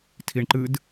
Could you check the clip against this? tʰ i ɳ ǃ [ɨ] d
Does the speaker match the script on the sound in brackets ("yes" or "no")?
yes